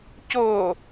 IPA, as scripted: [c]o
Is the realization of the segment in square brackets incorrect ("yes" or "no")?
no